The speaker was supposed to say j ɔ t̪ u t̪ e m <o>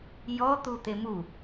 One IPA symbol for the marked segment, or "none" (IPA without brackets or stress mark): u